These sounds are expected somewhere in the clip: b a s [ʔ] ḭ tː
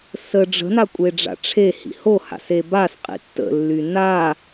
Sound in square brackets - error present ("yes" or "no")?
yes